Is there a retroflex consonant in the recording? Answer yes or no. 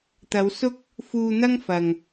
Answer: no